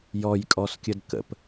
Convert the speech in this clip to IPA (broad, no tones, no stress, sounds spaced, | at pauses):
j ɔ j kʼ ɔ s kʲ ə d k ə̰ p